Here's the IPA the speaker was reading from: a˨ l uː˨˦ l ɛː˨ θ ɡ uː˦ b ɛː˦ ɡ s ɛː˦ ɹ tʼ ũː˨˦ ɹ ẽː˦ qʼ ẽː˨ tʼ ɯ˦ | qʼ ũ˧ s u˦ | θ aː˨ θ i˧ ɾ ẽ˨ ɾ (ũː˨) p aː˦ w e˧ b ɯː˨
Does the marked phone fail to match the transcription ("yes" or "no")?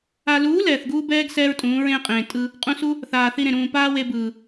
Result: no